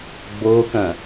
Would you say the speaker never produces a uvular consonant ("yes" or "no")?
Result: yes